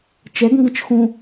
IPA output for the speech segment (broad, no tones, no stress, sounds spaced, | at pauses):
t͡ʃ ɛ ɡ ŋ ɡ ə̃ t͡ʃ x ũ